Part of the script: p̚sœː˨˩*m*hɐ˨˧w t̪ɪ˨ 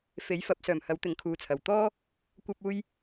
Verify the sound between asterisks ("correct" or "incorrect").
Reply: correct